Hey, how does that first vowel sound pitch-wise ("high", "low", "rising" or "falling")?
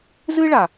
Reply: high